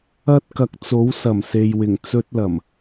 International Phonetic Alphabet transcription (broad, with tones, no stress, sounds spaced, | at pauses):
ɐ˧ t̚ k ɐ˨˥ k̚ t͡s o˨˥ w s ɐ˨˩ m s e˨ j w ɪ˨˩ ŋ t͡s ɵ˥ t̚ l ɐ˨˩ m